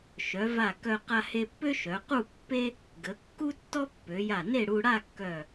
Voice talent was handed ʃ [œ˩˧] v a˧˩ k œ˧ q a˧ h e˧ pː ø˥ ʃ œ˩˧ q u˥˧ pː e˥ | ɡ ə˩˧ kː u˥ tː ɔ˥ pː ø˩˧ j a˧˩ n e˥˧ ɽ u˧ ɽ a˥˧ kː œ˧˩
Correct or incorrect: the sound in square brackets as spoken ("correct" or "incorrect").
correct